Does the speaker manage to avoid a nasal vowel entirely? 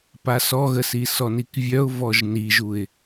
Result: yes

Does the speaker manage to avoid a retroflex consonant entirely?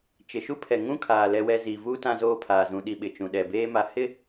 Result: yes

